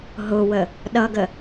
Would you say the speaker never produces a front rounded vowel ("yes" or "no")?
yes